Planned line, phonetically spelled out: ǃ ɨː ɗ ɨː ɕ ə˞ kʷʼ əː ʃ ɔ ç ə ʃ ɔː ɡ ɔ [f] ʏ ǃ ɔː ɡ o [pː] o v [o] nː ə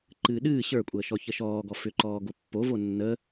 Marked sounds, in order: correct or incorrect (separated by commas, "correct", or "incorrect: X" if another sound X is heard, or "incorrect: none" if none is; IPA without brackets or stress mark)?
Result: correct, correct, correct